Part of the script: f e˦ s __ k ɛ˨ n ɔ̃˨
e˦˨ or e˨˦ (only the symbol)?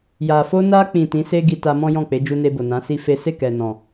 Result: e˦˨